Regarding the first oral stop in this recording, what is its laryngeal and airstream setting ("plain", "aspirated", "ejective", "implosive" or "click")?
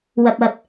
plain